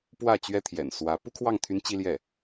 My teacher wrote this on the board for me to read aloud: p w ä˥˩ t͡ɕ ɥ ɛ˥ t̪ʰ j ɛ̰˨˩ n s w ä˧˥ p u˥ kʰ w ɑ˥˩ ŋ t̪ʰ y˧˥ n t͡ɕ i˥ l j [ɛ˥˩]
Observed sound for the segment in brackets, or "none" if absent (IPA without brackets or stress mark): ɛ˥˩